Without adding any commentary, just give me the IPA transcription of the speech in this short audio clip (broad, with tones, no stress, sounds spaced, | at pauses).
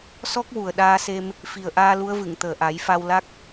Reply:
s ɔ˦˥ k̚ w u˨˩ ə̯ ɗ aː˧ s e˧ m | f i˨˩ ə̯ ʔ aː˧ l u˧˥ ə̯ v ɨ˨˩˨ ŋ t̪ əː˨˩ ʔ a˨˩˦ j f a˧ w l a˦˥ k̚